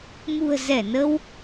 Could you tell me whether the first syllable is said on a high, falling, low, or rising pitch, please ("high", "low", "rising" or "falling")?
low